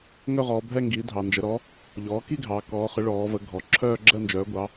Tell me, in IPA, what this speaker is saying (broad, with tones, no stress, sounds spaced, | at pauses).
ŋ œ˥˧ ʁ ɔː˩˧ bʱ ɛ˥˧ ŋ ɡ i˩˥ dʱ ɑ˩˧ n d͡ʒ ə˩˥ ɾ ɔ˩˥ | ʎ ɔː˩˥ k i˥˧ ɡʱ ɑː˩˧ k ɔː˩˥ χ ə˩˥ ɭ ɔː˩˧ v ə˩˧ ɡʱ ɔ˩˧ ǁʰ œː˥˧ ɡ͡ǁ ɜ˥˧ n d͡ʒ œː˩˥ ɡʷ ɑ˩˥